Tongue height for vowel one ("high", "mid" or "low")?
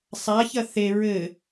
low